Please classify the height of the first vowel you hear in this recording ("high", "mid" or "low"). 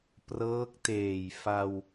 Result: mid